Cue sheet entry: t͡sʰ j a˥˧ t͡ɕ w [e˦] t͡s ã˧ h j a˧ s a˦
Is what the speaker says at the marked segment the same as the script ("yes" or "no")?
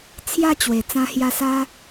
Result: no